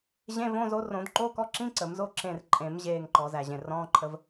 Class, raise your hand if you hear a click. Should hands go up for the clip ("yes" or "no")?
yes